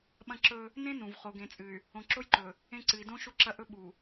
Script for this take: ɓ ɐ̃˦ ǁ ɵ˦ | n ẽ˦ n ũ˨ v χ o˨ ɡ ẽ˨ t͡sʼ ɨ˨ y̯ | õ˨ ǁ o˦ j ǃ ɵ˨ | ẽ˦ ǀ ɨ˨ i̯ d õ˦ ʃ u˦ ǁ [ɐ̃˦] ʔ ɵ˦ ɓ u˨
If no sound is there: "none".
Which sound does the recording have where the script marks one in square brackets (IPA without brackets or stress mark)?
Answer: ɐ˦